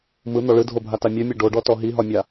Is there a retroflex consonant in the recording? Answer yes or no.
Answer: yes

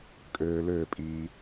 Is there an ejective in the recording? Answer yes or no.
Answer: yes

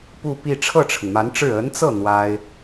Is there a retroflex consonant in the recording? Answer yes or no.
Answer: yes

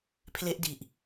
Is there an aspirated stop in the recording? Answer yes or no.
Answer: yes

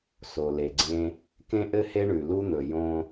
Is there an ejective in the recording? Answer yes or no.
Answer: no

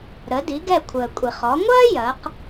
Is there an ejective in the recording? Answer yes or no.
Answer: yes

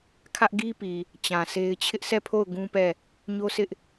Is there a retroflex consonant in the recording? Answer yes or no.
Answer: no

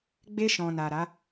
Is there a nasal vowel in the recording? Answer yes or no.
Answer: yes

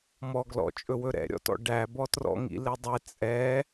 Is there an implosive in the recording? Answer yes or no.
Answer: no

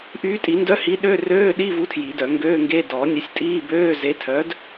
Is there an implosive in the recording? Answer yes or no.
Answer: yes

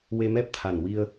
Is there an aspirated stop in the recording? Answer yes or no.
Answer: yes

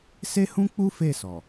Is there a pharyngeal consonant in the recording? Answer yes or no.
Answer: no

